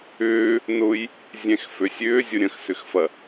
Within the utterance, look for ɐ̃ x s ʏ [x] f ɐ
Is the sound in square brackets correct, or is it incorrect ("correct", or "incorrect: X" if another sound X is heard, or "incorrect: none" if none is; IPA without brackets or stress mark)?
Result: correct